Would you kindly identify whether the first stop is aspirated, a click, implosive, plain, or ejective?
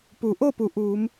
plain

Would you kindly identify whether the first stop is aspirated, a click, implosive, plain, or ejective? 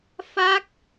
plain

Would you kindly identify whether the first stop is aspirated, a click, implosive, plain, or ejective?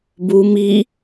plain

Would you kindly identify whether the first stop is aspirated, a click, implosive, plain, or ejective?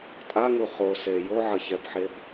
ejective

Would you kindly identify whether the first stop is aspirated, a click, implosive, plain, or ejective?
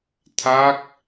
aspirated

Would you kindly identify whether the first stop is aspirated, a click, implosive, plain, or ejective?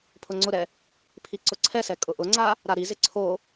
aspirated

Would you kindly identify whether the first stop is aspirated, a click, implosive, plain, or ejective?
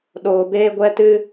implosive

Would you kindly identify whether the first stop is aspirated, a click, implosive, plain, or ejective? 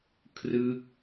aspirated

